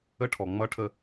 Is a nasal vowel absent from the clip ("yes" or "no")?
yes